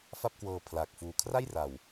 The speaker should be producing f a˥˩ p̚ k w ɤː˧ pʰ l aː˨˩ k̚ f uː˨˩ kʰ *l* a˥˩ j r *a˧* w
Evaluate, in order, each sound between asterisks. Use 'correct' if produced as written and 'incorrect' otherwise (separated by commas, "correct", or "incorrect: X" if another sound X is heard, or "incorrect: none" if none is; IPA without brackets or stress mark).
incorrect: r, incorrect: a˨˩